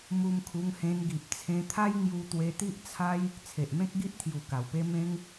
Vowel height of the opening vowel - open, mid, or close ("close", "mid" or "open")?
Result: close